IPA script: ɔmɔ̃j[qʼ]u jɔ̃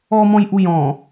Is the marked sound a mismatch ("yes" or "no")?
yes